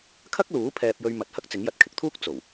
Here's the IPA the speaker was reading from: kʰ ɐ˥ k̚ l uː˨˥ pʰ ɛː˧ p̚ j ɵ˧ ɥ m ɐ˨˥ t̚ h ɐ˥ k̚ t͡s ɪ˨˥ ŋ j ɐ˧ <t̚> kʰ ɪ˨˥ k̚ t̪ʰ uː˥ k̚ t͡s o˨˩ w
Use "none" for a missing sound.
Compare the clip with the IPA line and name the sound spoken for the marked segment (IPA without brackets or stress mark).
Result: t̚